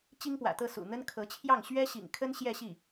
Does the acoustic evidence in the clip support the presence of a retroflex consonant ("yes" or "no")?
no